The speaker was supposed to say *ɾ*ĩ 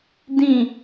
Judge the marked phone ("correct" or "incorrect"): incorrect